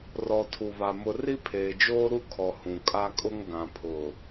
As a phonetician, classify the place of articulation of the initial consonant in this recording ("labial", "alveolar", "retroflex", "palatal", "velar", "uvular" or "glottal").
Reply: alveolar